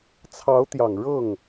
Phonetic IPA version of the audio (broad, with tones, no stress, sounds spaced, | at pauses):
t͡sʰ ɑ˧˥ ʊ̯ t̪ j ɑ˨˩ ŋ ɻ ɤ˥˩ ŋ